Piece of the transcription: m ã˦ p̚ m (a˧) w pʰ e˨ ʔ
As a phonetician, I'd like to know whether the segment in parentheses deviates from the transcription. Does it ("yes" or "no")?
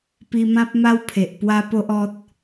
yes